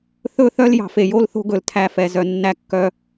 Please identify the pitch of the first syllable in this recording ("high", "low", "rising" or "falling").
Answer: falling